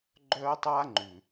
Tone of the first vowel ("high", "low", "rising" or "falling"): high